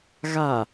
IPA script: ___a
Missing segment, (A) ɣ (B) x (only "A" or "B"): A